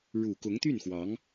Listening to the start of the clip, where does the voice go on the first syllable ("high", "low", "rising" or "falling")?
low